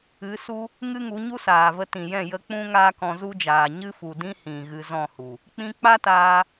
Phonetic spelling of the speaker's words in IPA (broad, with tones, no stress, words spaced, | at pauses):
ɨ˨˦su˦ | ŋɨ˦ŋu˨˦ɲu˦saː˨ və˧tĩ˨jɛ̃˦˨ jə˧k͡pũ˦ ŋaː˦kɔ̃˧zu˦d͡ʒaː˨ ɲɨ˦fu˨dĩ˦hĩ˨ ɣɨ˧zɔ̃˦˨hu˨ | k͡pĩ˧k͡pa˦taː˧